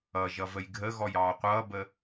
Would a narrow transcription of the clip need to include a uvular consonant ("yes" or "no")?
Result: yes